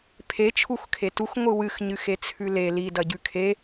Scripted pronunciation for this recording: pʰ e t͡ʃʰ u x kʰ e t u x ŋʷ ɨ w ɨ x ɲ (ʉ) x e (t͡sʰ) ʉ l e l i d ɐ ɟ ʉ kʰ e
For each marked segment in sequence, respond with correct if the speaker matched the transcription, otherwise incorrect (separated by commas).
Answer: incorrect, correct